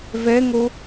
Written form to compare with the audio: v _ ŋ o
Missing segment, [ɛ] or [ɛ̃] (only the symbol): ɛ